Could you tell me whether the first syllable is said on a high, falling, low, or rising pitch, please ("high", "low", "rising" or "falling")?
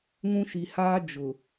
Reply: high